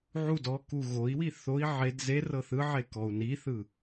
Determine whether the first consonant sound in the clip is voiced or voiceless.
voiced